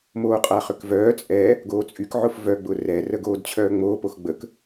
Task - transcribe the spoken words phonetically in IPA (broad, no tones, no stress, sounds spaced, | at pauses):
m oː qʼ a χ ʏ k v œː t͡sʼ ɛ | ɡ oː t͡sʼ y k ʕ ʊ f v œ ɡ͡b ʊ r ɛ r ə ɡ oː d t͡ɕʰ œː ŋ͡m oː p o x ɡ͡b ə k